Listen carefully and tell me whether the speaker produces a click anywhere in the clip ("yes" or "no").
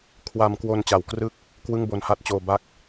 no